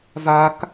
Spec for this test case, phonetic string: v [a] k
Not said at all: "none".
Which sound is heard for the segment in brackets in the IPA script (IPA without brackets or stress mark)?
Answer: a